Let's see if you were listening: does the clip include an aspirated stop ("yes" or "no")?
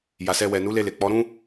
no